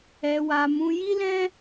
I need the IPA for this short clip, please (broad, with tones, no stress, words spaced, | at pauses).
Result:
ɛ˧wa˧ mũ˧ji˦lɛ̃˦